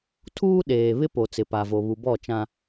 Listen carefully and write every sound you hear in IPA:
tʰ uː˦ ɗ eː˨ β ɪ˦ p o˨ t͡s ɪ˨ p a˨ v o˨ β u˨ b ɔ˦˨ t͡ʃ ã˦

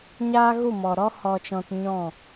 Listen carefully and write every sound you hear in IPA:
ɲ aː˦ ɣ u˦˨ m ɔ˨ ɾ ɔ˦ h ɔ˧ t͡ʃ ɔ̃˧ t ɲ ɔ̃˦˨

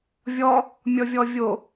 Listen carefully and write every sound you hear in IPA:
vʲ ɔ | mʲ ɔ vʲ ɔ vʲ o

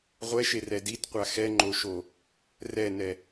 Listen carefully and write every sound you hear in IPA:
ʁʷ ɛ ʃ e r ɛ d i t qʷ a x ɛ ŋ͡ǃ o ʃ o | r ɛ n ɛ

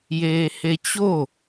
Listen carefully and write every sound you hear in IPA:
j eː h e t͡ɕ o

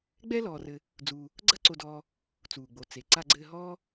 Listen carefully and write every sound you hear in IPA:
ɡ͡b ɛ˥ l ɔː˨ r ɘ˨ | d͡z uː˨ | ɡ͡ǀ ɐ˦ ǀ o˨ d ɔː˨ | t͡s uː˩ ɡ͡b o˩ t͡s e˩ ǀ a˨ ɡ͡ǀ ɘː˨ ɦ ɔː˦

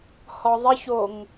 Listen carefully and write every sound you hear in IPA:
h ɔ ðˤ ɪ ç o ŋ

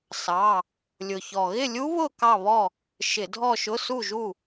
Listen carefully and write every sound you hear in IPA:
s ɑ˧˥˧ | lʲ ʊ˨˩ ç ɔ˨˩ ɣ ɪ˥˨ lʲ u˦˥ β ʊ˥˨ k ɑ˥˨ β ɔ˥˨ | ʃ ɪ˧˩˧ dʱ ɔ˥˨ ʃ ʊ˧˥˧ s u˥˨ ʒ u˥˨

